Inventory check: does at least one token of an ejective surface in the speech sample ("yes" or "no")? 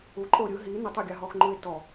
yes